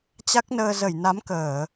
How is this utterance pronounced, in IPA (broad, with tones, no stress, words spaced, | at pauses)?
t͡ɕa˦˥k̚nəː˧ zə˧˩jna˨˦mkəː˧˩˨